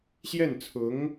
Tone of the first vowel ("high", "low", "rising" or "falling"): falling